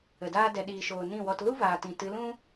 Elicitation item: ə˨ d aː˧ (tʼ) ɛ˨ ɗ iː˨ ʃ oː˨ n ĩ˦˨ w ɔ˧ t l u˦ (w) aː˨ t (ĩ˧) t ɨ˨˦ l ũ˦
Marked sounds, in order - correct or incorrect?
incorrect: d, incorrect: v, incorrect: ĩ˨

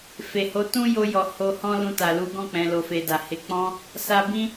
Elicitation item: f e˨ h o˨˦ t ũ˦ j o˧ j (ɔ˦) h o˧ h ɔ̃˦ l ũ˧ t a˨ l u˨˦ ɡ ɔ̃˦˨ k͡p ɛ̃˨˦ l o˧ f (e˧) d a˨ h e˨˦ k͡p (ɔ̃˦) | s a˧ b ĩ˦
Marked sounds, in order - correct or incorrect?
incorrect: ɔ˨, correct, correct

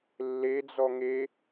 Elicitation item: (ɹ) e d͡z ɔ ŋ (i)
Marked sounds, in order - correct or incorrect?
incorrect: lː, incorrect: e

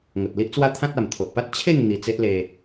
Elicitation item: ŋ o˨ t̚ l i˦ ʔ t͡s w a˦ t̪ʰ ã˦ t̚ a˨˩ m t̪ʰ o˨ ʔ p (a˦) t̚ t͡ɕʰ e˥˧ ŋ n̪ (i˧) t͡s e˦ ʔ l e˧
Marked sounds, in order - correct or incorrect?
correct, correct

